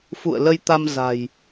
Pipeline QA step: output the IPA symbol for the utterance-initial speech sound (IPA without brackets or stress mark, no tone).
f